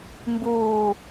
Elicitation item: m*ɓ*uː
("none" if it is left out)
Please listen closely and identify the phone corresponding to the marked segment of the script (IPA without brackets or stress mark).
b